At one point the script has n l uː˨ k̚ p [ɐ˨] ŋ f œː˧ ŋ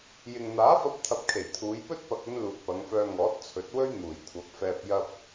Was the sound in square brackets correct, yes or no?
no